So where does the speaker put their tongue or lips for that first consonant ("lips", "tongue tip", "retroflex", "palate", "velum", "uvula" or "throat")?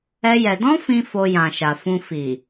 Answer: palate